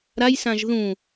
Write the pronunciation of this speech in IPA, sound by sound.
ɾ a j s ã ʒ ð ũ

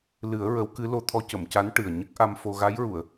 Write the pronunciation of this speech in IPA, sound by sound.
l ɨ˨˩˦ ə̯ ɹ ə˧˥ w k ɨ˧˥ l o˧˥ t̪ʰ ɔ˧˥ c ə˨˩˨ m c a˧˥ n ʈ ɨ˨˩ ə̯ ɲ ə˦˥ k̚ ʔ a˧ m f o˧ ɣ a˧˥ j ɹ u˨˩˨ ə̯

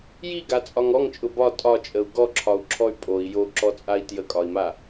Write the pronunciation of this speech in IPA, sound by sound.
j i ɡ a t͡sʼ ɒ ŋ ɔ ŋ t͡ʃʼ ʊ b ɒ tʼ ɒ t͡ʃʼ ə u̯ ɡ ɔ ǁʰ ɒ u̯ ǁʰ ɔ y̯ pʼ o i̯ j o ǁ ɔ t͡sʼ a i̯ t j ə kʼ ɒ i̯ m a

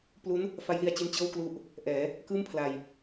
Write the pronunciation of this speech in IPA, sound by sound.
p l u˦˥ n | f a˦˥ j l i˧ a̯ t͡ɕ i˦˥ n t͡ɕ ɤː˥˩ w k l u˦˥ ʔ | ʔ ɛː˩˦ | k ɯː˥˩ m pʰ l a˧ j

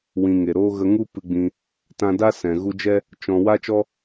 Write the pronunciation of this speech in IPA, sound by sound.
w ĩ˨ ŋ e˨ ɾ oː˦ ɣ ə˧ ŋ u˦ p ɨ˧ ɡ͡b ĩ˧ | t ã˧ d a˦ s ɛ̃˨ ɣ u˧ d͡ʒ ɛ˦ | t͡ʃ ɔ̃˧ w a˦ t͡ʃ ɔ˦

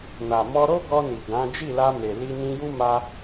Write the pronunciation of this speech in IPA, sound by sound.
n a˨ m ɔ˧ ɾ o˦ ɡ ɔ˧ n i˨ ɡ ã˨˦ d͡ʒ i˦˨ l a˧ m e˨ l i˧ n ĩ˧ j u˦ m a˧

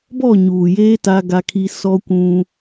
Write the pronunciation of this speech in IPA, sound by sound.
b ɔ˦˨ ɲ uː˨ j eː˦ t a˦ ɡ a˦ kʰ i˦ s ɔ˦ kʷ ũ˦

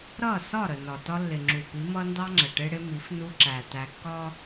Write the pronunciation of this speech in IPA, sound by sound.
ɾ ʌ˦˨ s ɒ˦˨ ɾ ə˨ n ɒ˨ t ɒ˦ lː ɪ˨ ŋ͡ǁ u˨ p i˨˦ m ʌ˦ n d ɑ˦ ŋ͡ǁ ə˨ ʈ ɪ˦ ɽ ɪ˦ m i˨˦ f n u˦ ǁ æ˨ t æ˨ kː ɒ˦

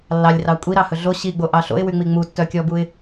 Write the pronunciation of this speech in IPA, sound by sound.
lː ɑ lʲ r ɑ kʷʼ i ɾ ɑ h ɵ ɮ o ɕ i ɡ͡b o ʔ ɑ ɬ o̰ ɪ̯ w y ŋ͡m i ŋ͡m u tː œ kʲ ɔ b u ɪ̯

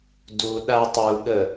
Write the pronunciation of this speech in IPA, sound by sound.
d u ɗ a tˤ u ɠ ə

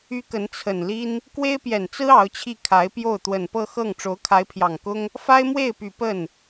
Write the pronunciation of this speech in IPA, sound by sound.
y˥ k ə˧˥ n t͡sʰ ə˨˩ n l i˥ n | k w e˥ ɪ̯ p j ɛ˨˩ n t͡s ɹ̩˥ ɑ˧˥ ʊ̯ t͡ɕʰ i˥˩ kʰ a˧˥ ɪ̯ p j o˥˩ ʊ̯ t̪ w ə˨˩ n p ɤ˥˧ x ɤ˥˩ ŋ ʈ͡ʂ o˧˥ ʊ̯ kʰ a˧˥ ɪ̯ pʰ j ɑ˨˩ ŋ k ʊ˥ ŋ | f a˥ ɪ̯ m w e˥˩ ɪ̯ p y˨˩ p ə˥˩ n

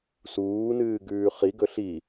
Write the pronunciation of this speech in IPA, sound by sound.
s uː n ɨː ɡ ʉː χ i ɡ ɵ ɬ i

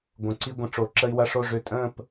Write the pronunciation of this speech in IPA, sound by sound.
ɡʷ ə̃˨˩˦ ǀ i˦ ɡʷ ə̃˨˦ ʈ͡ʂ o˨˩˦ ǁ ə˦ i̯ w ɐ˦ ʂ o˥˨ ʐ ø˥˨ tʼ ə̃ː˥˨ p

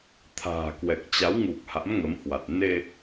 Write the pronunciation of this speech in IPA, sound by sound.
t̪ʰ a̤ː˨˩ k w ɛ˨˩ k̚ t͡ɕ a˨˦ w ŋ u˨˩ k̚ h a̰˧˥ m ŋ ə˨˦ m h w a˨˩ t̚ n e˧

